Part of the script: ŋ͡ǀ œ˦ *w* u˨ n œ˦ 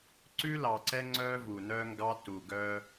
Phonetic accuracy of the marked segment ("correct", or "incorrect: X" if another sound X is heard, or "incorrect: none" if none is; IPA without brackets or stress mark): incorrect: v